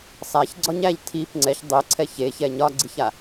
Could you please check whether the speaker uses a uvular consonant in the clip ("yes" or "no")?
no